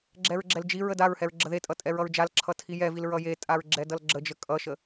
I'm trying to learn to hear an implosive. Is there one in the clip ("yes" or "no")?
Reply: no